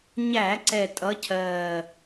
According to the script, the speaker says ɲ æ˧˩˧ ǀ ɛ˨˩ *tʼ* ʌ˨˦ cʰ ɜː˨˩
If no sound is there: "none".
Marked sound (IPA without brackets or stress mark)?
tʼ